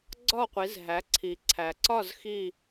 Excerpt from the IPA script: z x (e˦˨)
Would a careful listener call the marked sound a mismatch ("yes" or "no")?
yes